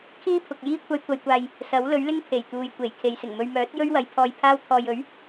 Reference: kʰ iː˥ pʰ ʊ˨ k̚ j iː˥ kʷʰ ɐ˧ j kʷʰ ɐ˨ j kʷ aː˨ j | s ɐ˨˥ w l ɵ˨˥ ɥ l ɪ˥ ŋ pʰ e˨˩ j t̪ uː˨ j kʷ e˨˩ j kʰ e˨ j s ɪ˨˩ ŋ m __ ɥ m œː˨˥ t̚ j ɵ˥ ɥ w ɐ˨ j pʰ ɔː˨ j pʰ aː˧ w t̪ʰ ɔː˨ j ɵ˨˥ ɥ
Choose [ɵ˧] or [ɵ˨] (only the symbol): ɵ˧